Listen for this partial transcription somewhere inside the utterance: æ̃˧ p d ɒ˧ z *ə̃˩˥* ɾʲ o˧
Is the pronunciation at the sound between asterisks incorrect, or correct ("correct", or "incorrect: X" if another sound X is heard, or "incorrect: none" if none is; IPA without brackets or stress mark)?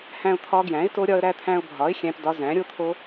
incorrect: æ̃˩˥